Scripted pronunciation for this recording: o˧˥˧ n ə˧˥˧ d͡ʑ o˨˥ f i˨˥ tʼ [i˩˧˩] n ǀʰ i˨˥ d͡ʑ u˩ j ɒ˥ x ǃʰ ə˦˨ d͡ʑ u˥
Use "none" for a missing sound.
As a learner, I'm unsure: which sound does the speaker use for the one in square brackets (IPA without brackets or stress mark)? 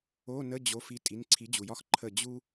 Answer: i˩˧˩